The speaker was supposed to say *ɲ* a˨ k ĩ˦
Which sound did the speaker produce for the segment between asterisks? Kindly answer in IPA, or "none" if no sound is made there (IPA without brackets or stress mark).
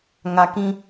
ŋ